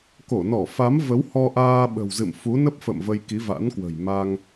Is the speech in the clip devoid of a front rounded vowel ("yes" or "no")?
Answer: yes